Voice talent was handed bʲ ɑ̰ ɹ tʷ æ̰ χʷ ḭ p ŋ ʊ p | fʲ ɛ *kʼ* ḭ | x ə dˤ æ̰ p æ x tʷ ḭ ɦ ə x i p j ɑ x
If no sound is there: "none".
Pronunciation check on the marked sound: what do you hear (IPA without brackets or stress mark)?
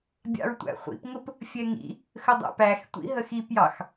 ŋ